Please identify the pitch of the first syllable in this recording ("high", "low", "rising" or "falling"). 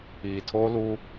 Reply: low